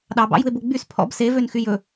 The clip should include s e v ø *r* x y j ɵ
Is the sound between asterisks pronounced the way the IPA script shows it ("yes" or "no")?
no